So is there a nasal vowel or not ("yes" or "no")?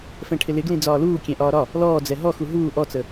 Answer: yes